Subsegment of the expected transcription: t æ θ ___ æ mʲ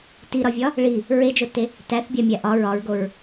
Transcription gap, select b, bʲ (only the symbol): bʲ